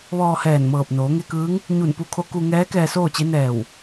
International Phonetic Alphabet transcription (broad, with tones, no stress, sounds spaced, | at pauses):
ʋ ɔː˧ h ɛː˧˩ n m ɤː˧˩ p̚ n oː˩˧ ŋ e˧ k ɯː˧˥ ŋ | ɲ u˧˩ n p u˧ kʰ o˧ k u˧ ŋ ɛː˧˥ k ɛː˧ s oː˥˨ t͡ɕ e˧˥ n ɛː˧˩ w